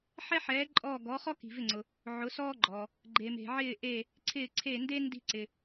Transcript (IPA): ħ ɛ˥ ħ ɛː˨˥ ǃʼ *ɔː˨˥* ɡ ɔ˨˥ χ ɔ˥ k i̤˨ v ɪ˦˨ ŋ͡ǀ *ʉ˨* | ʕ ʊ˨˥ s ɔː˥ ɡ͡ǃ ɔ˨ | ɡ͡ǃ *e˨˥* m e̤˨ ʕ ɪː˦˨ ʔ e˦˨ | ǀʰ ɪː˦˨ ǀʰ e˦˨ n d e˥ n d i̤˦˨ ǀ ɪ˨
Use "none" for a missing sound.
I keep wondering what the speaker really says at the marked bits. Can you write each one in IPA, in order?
ɔː˦˨, ʊ˨, e˨

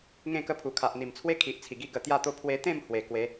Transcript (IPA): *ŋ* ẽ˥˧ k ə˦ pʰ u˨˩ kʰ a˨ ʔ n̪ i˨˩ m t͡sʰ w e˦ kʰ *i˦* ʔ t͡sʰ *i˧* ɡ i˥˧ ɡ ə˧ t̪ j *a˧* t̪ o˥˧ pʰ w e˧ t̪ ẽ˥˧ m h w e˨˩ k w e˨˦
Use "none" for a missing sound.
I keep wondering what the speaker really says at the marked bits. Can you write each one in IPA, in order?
ŋ, i˨, i˨˩, a˥˧

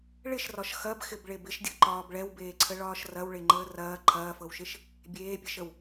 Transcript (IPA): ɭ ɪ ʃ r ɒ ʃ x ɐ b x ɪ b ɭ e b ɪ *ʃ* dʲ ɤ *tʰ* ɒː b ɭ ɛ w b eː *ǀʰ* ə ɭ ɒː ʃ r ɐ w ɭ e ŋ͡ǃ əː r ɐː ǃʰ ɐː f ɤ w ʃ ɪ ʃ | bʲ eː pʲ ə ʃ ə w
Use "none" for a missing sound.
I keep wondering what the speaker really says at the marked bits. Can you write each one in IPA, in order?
ʃ, ǃ, ǀʰ

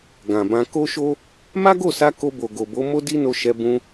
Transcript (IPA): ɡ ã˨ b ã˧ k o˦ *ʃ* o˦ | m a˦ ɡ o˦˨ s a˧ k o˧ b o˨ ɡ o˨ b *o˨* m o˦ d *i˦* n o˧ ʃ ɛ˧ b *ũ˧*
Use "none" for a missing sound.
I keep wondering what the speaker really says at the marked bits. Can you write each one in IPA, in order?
ʃ, o˨˦, i˦, ũ˧

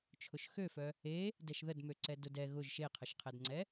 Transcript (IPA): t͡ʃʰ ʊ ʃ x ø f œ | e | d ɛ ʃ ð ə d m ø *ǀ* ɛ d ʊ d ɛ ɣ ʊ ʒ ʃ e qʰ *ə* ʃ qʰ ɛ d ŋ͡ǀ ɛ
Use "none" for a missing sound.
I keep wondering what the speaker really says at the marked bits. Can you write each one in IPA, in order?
ǀ, ə

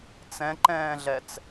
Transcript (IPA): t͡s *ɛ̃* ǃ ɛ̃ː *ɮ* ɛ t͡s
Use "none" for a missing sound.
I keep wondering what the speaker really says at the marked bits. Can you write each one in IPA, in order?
ɛ̃, ɮ

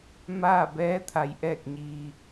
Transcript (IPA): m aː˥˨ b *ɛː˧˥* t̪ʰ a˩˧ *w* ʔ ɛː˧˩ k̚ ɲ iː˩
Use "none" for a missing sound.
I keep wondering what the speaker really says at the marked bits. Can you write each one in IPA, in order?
ɛː˧˥, j

